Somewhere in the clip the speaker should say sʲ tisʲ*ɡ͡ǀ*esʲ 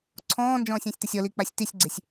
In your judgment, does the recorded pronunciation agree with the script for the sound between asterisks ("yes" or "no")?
yes